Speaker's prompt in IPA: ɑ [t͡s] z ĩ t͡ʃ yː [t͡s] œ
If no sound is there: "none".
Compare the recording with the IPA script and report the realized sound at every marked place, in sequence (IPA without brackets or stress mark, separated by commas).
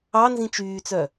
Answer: n, t͡s